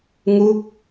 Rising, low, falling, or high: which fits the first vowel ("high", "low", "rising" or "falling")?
falling